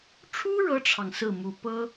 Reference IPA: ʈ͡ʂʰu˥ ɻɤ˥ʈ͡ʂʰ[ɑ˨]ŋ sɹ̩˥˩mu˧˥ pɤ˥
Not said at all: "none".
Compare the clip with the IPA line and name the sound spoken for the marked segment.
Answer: ɑ˨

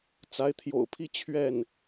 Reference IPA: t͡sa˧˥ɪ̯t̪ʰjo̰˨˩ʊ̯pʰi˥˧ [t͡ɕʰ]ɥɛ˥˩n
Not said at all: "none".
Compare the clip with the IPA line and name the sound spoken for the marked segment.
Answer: t͡ɕʰ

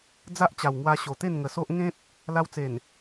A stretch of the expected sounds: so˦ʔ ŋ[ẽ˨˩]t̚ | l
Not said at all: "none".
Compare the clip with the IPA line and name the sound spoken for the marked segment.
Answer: ẽ˦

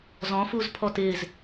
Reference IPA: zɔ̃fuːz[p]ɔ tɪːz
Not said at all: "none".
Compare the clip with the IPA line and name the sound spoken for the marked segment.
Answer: pʰ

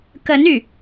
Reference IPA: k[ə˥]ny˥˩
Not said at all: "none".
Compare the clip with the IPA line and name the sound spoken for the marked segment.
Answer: ə˧˥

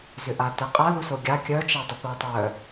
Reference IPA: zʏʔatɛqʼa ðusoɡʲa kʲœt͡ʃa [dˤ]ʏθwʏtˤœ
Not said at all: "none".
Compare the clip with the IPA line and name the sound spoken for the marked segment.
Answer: dˤ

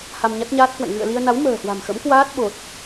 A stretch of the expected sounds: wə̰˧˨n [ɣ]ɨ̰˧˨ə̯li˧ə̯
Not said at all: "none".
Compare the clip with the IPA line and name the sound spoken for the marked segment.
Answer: ɣ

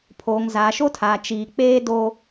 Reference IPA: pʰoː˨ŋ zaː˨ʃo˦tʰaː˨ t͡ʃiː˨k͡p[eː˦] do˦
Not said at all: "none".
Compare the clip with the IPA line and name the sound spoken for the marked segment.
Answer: eː˦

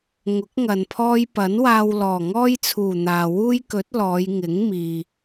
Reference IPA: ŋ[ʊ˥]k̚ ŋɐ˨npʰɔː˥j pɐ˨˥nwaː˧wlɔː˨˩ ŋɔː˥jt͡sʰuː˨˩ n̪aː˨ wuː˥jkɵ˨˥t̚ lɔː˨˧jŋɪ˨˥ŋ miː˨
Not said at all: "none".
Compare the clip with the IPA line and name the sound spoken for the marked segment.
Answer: ʊ˨˥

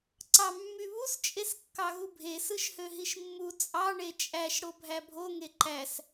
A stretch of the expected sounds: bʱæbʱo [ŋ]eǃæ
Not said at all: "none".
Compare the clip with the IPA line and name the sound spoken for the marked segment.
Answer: ŋ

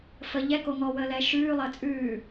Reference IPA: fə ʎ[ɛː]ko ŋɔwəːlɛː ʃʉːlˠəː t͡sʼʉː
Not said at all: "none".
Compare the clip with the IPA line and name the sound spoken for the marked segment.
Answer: ɛ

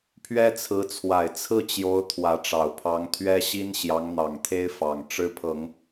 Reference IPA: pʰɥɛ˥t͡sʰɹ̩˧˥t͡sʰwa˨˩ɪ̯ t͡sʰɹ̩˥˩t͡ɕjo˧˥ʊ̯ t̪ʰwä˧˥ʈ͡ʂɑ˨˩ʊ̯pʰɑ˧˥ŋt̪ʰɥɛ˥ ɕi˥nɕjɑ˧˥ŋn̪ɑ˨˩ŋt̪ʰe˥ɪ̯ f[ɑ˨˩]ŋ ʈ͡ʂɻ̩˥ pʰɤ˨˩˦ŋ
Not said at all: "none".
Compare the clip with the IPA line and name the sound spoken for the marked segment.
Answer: ɑ˨˩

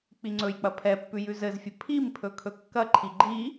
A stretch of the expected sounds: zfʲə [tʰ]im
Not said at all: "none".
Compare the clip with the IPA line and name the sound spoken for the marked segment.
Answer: pʰ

